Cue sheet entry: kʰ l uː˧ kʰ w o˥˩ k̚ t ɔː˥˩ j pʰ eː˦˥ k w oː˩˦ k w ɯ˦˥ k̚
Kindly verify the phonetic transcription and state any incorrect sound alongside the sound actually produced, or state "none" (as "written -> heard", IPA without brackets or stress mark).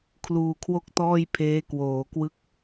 none